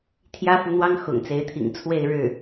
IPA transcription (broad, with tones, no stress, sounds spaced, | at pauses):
t̪ʰ j ä˥ f u˧˥ n̪ w ɑ˥ ŋ x ʊ̰˨˩ ŋ t͡s e˧˥ ɪ̯ t̪ʰ ḭ˨˩ ŋ t͡sʰ w e˥˧ ɪ̯ ɻ ɻ̩˥˩